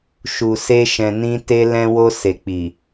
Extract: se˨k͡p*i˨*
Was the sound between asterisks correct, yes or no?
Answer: yes